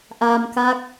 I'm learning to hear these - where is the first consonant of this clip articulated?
throat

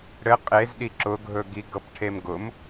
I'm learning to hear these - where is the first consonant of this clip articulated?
retroflex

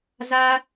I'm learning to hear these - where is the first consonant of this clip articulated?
tongue tip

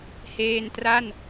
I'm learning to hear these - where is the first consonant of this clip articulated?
throat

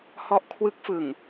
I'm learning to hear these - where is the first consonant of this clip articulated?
throat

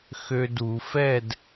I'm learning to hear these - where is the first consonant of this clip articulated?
velum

